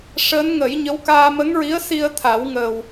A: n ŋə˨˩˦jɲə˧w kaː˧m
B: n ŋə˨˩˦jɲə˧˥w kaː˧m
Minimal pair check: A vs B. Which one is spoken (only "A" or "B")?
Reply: B